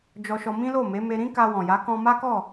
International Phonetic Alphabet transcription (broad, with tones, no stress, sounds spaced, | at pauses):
d͡ʒ ɔ˧ ʃ ɔ˧ m ĩ˦ l o˦˨ m e˨˦ m e˧ ɾ ĩ˦ k a˧ w ɔ̃˨ j a˨˦ k ɔ̃˧ m a˦ k ɔ˦˨